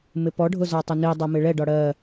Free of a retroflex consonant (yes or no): no